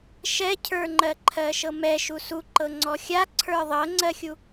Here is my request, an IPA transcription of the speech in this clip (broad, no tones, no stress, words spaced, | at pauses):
ʃɛcʰə˞ŋ͡ǃɜǃʰɜ ʃɤmɛʃu suǃɤ ŋ͡ǀɔxʲaǀʰə˞ ðˤɤŋ͡ǀɜxʲu